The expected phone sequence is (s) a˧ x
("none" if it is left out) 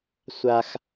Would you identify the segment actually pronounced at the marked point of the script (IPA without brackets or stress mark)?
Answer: sʷ